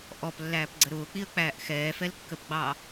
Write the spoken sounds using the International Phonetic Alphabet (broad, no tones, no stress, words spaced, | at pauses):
ʔɔplːæːpɡ͡ǀə ɾʊːk͡piə̯k͡pæːʔ xɛːfɛlkːəpɡ͡bɑ